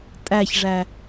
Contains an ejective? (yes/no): yes